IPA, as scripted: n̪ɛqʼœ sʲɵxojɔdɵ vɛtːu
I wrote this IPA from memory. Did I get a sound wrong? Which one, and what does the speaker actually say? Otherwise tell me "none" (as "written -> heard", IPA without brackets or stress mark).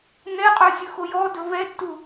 none